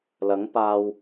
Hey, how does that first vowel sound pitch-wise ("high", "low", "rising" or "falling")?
rising